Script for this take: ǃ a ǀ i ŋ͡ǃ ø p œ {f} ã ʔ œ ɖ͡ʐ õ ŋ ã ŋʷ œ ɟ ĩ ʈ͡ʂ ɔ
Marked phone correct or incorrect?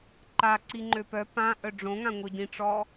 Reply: incorrect